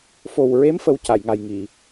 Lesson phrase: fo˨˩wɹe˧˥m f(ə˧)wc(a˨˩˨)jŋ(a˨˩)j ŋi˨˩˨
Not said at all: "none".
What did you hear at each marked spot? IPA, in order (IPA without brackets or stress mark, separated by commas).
ə˧˥, a˨˩˨, a˨˩